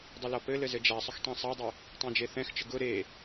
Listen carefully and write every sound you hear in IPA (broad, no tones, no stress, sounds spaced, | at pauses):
dˤ ɘ l ɔ p ɘ l ɘ z ɘ d͡ʒ a sˤ ʊ x tˤ ɛ̃ sˤ a dˤ ʊ | tˤ ɛ̃ d͡ʒ e θ ɛ̃ x t͡ʃ ə ɡ ʊ ɾ e